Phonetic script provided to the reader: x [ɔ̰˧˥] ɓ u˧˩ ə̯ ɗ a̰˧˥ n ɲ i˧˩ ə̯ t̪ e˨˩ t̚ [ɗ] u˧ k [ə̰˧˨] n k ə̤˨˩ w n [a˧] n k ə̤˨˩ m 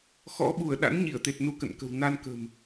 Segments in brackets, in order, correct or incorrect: correct, incorrect: n, correct, correct

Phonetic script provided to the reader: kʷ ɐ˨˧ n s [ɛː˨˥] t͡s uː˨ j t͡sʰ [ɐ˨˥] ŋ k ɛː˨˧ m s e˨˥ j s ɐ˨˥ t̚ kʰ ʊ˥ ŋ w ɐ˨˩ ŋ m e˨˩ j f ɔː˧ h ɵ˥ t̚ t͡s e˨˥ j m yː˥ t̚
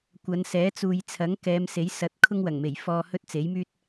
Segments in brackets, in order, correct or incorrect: correct, correct

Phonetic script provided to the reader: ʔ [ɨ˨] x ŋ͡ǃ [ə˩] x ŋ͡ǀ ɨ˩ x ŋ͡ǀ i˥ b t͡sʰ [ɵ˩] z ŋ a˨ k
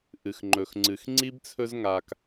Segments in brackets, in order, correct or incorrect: incorrect: ɨ˩, incorrect: ɵ˩, incorrect: ɵ˦

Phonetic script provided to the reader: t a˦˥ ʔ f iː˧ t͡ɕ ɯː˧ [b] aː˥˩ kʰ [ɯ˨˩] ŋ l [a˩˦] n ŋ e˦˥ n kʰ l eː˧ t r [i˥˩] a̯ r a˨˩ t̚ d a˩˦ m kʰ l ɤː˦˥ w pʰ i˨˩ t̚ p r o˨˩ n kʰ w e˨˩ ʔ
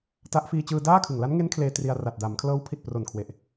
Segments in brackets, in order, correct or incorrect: incorrect: d, correct, incorrect: a˦˥, incorrect: i˧

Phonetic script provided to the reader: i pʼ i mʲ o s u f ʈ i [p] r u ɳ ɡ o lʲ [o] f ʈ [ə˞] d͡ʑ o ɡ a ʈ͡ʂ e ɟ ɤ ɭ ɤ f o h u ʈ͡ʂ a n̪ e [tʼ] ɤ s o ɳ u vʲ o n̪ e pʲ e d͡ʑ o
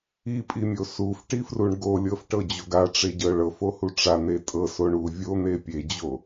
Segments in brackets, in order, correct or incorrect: incorrect: f, incorrect: ɤ, incorrect: ɤ, correct

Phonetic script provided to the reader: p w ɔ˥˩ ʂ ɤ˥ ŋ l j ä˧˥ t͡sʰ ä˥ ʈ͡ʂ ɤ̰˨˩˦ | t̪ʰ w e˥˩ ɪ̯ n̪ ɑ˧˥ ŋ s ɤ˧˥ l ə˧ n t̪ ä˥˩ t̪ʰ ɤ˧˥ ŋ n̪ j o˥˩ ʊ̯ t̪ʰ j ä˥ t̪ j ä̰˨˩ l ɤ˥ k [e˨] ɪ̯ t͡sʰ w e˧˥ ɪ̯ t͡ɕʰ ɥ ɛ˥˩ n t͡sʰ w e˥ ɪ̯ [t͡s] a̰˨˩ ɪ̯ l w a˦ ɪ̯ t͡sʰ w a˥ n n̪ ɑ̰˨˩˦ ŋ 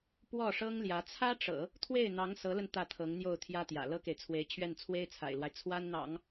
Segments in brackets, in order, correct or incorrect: correct, incorrect: t͡sʰ

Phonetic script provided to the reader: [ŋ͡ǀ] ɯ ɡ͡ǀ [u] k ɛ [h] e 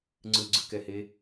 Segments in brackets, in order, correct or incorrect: correct, incorrect: ɯ, correct

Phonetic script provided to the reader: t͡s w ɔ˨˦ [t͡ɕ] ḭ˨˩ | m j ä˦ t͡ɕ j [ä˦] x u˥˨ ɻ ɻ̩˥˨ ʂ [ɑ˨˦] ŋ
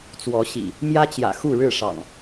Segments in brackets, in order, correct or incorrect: incorrect: ɕ, incorrect: ä̰˨˩, incorrect: ɑ̰˨˩

